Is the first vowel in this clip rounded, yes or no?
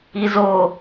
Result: no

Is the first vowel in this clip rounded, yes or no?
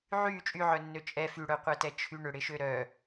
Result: yes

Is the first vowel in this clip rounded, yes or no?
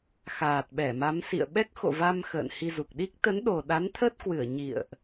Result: no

